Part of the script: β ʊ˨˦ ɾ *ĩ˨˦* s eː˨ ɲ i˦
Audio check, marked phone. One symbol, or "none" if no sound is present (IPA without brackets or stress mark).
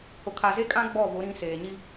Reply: ĩ˨˦